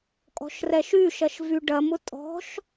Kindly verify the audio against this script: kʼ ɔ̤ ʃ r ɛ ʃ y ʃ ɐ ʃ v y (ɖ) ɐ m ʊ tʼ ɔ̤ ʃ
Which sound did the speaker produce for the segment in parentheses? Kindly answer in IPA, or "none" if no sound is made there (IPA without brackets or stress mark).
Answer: ɖ